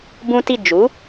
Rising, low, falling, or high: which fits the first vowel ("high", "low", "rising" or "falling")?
high